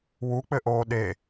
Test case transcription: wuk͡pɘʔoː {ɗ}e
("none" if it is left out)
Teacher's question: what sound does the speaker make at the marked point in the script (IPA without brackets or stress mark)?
ɗ